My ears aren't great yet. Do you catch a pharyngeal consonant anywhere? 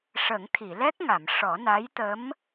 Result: no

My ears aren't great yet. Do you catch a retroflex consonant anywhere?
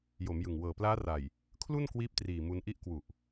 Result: no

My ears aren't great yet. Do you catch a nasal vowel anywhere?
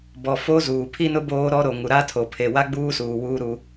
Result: no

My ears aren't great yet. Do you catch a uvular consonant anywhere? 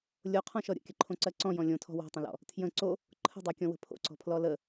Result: yes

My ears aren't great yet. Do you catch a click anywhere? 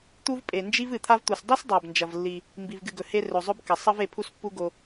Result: no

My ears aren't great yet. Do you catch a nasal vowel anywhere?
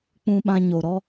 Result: yes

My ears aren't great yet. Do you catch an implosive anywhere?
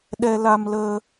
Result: yes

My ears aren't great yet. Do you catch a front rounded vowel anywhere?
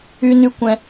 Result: yes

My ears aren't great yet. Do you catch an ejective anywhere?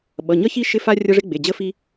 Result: no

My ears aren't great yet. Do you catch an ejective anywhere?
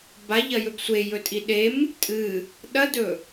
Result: yes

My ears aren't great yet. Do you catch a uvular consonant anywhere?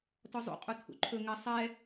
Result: yes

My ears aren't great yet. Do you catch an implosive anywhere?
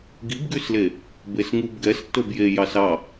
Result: no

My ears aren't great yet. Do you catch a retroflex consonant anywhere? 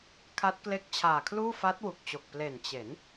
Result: no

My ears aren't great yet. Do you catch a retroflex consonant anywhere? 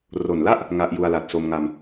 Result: no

